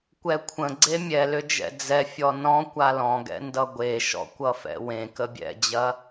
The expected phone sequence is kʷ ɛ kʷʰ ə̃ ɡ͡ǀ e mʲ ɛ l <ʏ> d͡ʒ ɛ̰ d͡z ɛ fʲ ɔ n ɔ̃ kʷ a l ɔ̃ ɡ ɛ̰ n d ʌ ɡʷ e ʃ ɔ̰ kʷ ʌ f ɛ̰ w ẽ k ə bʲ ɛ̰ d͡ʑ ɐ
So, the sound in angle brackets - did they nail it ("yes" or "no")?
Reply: yes